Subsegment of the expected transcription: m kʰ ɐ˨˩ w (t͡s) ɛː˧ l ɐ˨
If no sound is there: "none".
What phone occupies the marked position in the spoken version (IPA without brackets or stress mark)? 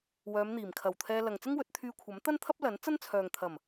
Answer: t̪ʰ